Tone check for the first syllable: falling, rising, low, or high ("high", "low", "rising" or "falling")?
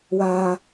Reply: low